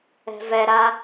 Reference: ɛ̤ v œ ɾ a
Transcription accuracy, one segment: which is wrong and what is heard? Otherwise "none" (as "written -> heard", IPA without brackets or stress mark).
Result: œ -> ɛ